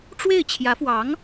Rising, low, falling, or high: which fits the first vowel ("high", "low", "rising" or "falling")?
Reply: falling